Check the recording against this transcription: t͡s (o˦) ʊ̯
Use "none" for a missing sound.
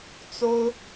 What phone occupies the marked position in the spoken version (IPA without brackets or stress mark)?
o˦